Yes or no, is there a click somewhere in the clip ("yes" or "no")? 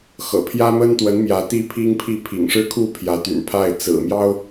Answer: no